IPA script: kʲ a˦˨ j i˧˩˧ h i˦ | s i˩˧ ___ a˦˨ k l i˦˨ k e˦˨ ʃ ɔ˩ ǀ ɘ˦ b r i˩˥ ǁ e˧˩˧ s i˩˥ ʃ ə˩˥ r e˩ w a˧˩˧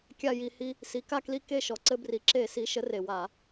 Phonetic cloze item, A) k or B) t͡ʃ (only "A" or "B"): A